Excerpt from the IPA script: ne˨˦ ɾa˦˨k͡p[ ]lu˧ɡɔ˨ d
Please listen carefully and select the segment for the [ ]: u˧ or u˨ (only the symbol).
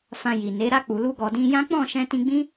u˨